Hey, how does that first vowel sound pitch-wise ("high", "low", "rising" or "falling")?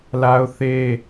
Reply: high